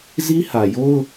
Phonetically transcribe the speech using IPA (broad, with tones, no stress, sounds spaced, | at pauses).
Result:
z i˦ h ä˨ j o˦ ʊ̯